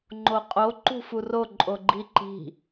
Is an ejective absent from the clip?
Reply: no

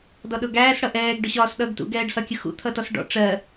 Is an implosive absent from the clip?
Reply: no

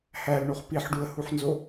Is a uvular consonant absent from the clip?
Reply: no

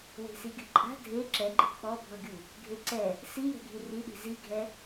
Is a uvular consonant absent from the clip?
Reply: yes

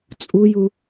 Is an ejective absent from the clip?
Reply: no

